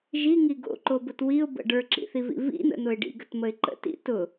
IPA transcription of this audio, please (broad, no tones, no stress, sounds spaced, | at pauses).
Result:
ʒ i ŋ i ɡ o̰ ǃ o b ʊ t w i ʊ̯ b ə̰ ɖ ə˞ ǁ ḭ θ i v ḭ v ḭ n̪ ə̰ n̪ ʊ ɪ̯ ɖ ḭ ɡ ə t m ə ɪ̯ ǃ ə̰ t ḭ t ʊ